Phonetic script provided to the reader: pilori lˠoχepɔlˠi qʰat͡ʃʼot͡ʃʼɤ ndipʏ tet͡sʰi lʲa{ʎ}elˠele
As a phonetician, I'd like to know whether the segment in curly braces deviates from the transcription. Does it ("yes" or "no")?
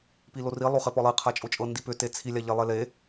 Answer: no